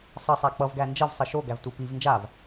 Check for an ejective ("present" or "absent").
absent